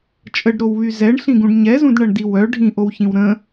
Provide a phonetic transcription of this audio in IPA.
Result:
t͡ʃʼ ə ɖ ɾ o w β y z ɛ ɳ ɬ ĩ ɡ ũ ɖ ɲ ɛ z ũ d ɳ ɐ ɳ d i w œ ɖʱ ĩ ʔ o w ç ĩ w ɾ ə̃

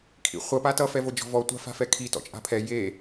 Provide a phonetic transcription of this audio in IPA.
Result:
kʰ ḭ χʷ ɐ p a t ʌ f ɛ v o d͡ʒ ɔ̤ v ɔ tʷ a̤ f a̤ f ɛ kʰ i t ɔ̰ t͡ʃʼ a̤ pʰ ɛ j e

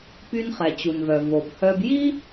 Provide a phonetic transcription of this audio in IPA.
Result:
p y˧ n χ ɛ˩ t͡ɕ u˩ n v œ˩ v o˩ b h œ˧ b j i˥

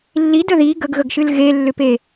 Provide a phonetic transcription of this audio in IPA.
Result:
lː i d ə ð i ɡ ə ɡ ɣ ə ɡ ʃ ɨ l ɣ e lː ʏ p e

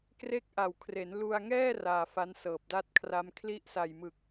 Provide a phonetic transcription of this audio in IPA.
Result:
k r e˦˥ k̚ ʔ a˨˩ w kʰ r e˩˦ n l u˧ a̯ ŋ ɛː˥˩ r aː˧ f a˦˥ n s ɤː˨˩ p̚ d a˥˩ t̚ kʰ r a˦˥ m kʰ l i˦˥ ʔ s a˨˩ j m ɯ˨˩ k̚

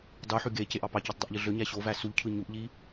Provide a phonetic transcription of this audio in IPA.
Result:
dˤ u ħ y ɡ e c e ʔ ɑ p ɑ c e tˤ dˤ ø ʔ ʎ ɯ ɮ ø ɲ æ ɕ o v æ s u ʎ cʰ ɯ ɲ u ʔ ʎ i

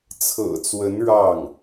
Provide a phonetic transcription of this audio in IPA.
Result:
t͡sʰ ɤ̰˨˩ t͡s w ə˧˥ n ɻ ɑ˥˩ ŋ

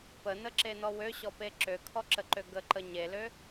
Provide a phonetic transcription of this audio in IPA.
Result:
p ə n ə ǁ e n ɔ w ø ɕ ɔ p e ǁ ø kʰ ɔ ǁ ə ǃ ø ɡ ə ǃ ə ɲ e l ø

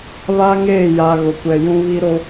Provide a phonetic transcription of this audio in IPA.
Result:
β a˦ ŋ eː˦˨ j a˨ ɣ ʊ˨ kʷ ɛ˨ j ũ˦ β i˦ ɾ o˦

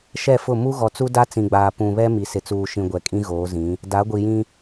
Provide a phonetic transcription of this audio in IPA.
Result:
ʃ ɛ˦˨ f ʊ˦˨ m u˦ ɣ ɔ˨ t͡s u˦ d a˦ t͡s ĩ˨ ɡ͡b aː˨ p ũ˨ β ɛ˦ m i˨ s ɪ˨ t͡s uː˨ ʃ ĩ˨ ɡʷ ɛ˨ kʼ ĩ˦ ɣ oː˨˦ z ĩ˨˦ | d a˨˦ ɡʷ i˨ j ĩ˦

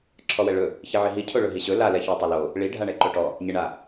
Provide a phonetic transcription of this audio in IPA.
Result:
ǁʰ ɔ w ɛ ɭ ɵ | ç i ʕ i ɦ i cʰ o ɭ ɵ ɦ i ɕ ɵ l a l ɛ ç o tˤ e l o | ɭ i ɖʱ a ɳ ɛ ǃ o ʈ ɔ | ɲ e ɳ a

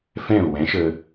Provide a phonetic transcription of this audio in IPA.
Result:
f ɛ̃˥˩ u̯ w ɛ̃˩˥ ʃ ə˧

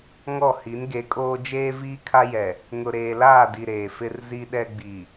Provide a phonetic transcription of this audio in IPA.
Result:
ŋ ɔ˦˨ h i˨˦ n ɡ e˨˦ kʼ oː˦ d͡ʒ eː˦ v iː˦ kʰ a˦ j ɛ˨ | ŋ ʊ˨ ɾ eː˨ l aː˦˨ d i˨ ɾ eː˨ f ɪ˦ r z i˦ ɗ ɛ˦ ɡ͡b i˨

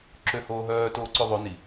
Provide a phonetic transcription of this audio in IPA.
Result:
ǁ ø h oː ɦ œː t oː ǀ ø ðˤ o n i

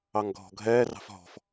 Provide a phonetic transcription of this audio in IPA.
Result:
ɑ ŋ ɡʱ ɔ̤ ɡʱ ɛː r ɑ̤ f ɦ ɔ̤ f

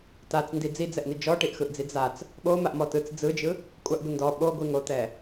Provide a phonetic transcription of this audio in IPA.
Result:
t a t͡s n d i d͡z i d͡z ɛ ʔ n̪ i d͡ʒ ɔ ʈ i ʔ x ɯ ʔ d͡z i d͡z a t͡s | ɓ o m a ʔ m ɔ t ɯ t͡s d͡z ɯ d͡ʒ ɯ | kʷʼ a ʔ ɡʷ i n d ɔ ɓ o ɡʷ i ŋ o t̪ ɛ

